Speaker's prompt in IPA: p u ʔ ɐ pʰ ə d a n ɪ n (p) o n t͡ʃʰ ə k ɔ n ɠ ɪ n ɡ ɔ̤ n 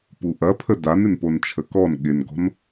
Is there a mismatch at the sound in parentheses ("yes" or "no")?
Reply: no